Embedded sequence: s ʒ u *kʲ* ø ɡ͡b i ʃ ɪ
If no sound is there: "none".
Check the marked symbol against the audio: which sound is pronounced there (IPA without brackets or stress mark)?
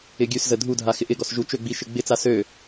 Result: t͡ʃ